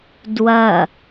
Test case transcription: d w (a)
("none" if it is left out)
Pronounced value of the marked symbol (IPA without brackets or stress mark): ɐ